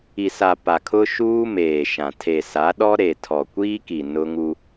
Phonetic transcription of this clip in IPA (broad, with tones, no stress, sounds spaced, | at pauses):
i˨ s a˨ p a˨ kʰ ʊ˦ ʃ uː˦ m eː˨ ʃ ã˨ tʰ e˨ s a˨˦ ɗ ɔ˦ ɾ e˨ tʰ ɔ˨ kʷ iː˦ k i˨ n ʊ˦ ŋ u˦